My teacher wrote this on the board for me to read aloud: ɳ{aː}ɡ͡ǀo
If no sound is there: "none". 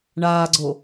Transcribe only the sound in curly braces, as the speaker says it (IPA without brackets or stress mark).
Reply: aː